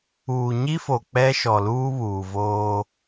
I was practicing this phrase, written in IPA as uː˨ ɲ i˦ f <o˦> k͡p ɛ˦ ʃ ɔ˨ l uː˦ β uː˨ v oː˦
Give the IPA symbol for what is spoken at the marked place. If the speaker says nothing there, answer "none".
o˨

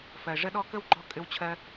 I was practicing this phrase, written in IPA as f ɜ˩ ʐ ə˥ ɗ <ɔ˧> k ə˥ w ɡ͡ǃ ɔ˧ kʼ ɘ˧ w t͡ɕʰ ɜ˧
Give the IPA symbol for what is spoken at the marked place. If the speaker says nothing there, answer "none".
ɔ˥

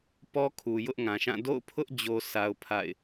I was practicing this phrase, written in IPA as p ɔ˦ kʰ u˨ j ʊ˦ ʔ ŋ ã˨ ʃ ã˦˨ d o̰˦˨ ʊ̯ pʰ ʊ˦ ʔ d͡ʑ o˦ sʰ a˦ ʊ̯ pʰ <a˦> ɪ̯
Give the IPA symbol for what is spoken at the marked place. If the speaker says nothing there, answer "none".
a̰˦˨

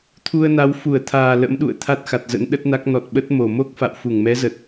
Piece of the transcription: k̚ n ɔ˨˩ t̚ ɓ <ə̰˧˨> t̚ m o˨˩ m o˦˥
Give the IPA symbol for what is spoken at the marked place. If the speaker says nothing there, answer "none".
ə˦˥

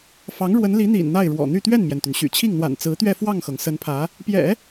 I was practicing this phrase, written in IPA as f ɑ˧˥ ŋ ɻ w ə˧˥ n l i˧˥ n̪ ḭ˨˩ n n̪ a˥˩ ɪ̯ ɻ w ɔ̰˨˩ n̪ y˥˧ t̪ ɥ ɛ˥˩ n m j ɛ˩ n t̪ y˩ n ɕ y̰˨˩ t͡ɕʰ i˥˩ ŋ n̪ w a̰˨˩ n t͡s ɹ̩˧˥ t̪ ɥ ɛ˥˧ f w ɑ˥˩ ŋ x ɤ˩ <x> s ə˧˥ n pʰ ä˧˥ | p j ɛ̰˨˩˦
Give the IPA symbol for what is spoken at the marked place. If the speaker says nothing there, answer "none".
ŋ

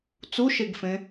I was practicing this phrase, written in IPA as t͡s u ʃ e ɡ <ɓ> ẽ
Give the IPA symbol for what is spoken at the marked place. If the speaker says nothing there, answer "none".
f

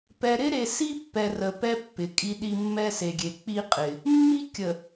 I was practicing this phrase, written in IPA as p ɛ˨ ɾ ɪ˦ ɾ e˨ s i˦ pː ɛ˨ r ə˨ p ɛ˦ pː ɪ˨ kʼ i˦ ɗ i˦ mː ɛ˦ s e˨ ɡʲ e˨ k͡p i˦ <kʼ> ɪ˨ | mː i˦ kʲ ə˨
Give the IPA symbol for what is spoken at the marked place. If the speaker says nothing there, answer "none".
qʼ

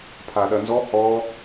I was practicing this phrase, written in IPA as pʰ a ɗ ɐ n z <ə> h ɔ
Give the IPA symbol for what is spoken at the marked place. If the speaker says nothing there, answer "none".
ɔ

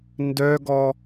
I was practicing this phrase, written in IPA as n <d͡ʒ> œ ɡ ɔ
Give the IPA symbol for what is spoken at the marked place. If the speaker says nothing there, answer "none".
d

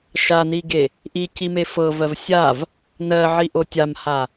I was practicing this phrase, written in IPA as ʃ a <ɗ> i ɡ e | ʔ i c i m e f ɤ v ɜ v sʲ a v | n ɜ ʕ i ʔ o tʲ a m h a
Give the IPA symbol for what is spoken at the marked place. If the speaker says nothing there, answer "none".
n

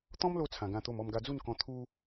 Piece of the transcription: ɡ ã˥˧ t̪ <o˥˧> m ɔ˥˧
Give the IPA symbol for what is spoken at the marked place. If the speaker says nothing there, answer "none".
o˥˧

